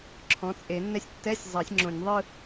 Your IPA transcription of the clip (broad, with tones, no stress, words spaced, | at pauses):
ǁʰɔ̃˩˥t͡sʼe˨˩˦nːɛ˥˩sʲ tːɛ˧˥˧sʲzˤɐ˨˩˦sʲ ŋ͡ǁõ˨˩˦nʲðˤɯ˥˧